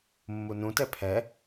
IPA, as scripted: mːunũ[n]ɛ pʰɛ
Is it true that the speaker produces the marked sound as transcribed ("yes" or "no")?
no